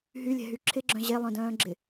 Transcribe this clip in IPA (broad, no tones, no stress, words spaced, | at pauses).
ɦylʲɛ̤ɦy ǁʰɪɡ͡ǁœ̃ ʑelˠœ̃dœ̃ːɡ͡ǁɪ